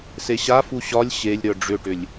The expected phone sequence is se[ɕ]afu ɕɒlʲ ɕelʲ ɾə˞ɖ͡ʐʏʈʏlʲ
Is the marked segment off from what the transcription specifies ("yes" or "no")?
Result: no